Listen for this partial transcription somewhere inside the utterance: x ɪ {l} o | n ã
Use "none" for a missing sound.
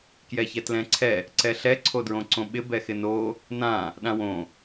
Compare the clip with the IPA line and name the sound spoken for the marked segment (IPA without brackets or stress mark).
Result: n